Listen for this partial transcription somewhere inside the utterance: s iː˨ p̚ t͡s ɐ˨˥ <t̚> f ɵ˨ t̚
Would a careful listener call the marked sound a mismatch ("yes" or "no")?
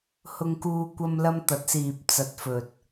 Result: no